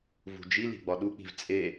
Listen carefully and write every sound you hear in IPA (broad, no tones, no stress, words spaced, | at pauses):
vṳd͡ʒili̤ ɡ͡bɒɗuk͡pi̤v t͡sʼe